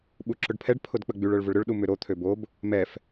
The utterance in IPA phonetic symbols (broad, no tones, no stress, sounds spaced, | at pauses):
ɓ u ǁ ʊ ɖ pʰ ɛ ɖ pʰ ʊ d k͡p ə ɡ͡b y ɭ œ ɭ v ʊ ɭ ɾ ʏ ɭ ɗ u m ʏ ɾ o t̪ʰ ø b o b | m ɛ f